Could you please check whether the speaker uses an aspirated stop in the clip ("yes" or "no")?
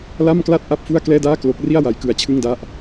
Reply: yes